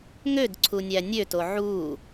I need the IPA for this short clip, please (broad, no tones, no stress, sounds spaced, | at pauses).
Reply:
ŋ ø d ǀʰ u nʲ æ nʲ ø t o ʕ u